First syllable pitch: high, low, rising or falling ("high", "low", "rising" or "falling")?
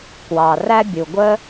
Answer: low